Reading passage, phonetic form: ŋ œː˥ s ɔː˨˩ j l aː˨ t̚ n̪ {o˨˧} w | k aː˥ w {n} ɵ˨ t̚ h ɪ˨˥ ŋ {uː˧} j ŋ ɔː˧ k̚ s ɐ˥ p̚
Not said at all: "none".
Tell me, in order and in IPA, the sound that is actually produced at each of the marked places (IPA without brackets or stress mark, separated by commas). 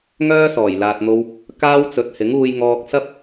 o˧, t͡s, uː˧